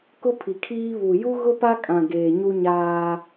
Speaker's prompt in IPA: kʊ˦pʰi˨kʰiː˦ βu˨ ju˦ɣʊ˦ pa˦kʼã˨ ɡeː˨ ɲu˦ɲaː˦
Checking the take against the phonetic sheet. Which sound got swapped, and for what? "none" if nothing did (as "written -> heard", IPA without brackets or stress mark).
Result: none